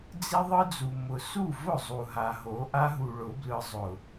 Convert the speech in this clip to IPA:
d͡z i˦ ðˤ ɯ˦ d͡z u˨ m ʊ˨ s u˦˨ v ʊ˦˨ zˤ u˨ ɦ a˨ ɦ o˨˦ ʔ a˦ ɦ u˨ ɭ ʊ˨˦ b l ɯ˨ zˤ ʊ˨

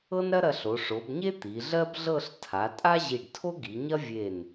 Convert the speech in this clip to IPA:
ɤ˥ n ɾ ɐ˥ ɾ ɐ˧ ɬ o˩˧ ʂ o˩˧ b ɲ e˥ t̪ i˩˧ ɮ ɜ˥ b ɮ ɤ˥˧ ɬ tʰ a˩˧ tʼ a˥ ʑ i˧˩ ɖ tʰ o˥ ɡ i˩˧ ɲ ɐ˥ vʲ e˧˩ n

